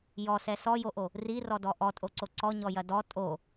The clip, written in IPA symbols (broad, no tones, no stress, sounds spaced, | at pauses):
j ɔ s ɛ s ɔ j o ʔ o | r i r ɔ d ɔ ʔ ɔ tʼ o ǀ o ǀ ɔ ɲ ɔ j ɐ d ɔ tʼ o